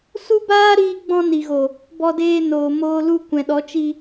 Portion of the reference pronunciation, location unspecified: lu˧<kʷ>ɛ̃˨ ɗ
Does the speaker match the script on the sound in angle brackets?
yes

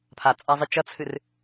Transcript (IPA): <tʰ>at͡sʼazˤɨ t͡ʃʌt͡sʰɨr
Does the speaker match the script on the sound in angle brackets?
no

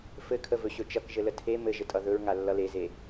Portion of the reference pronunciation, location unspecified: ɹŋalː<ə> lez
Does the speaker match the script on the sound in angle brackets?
no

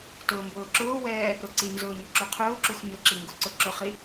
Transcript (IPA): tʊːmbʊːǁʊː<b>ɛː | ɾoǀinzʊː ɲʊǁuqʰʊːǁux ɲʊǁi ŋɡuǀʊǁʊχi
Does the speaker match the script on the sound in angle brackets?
no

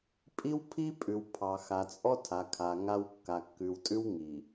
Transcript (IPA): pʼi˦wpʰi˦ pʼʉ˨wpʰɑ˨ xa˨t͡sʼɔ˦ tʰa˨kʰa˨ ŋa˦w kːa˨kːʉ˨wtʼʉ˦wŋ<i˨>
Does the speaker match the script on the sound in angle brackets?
yes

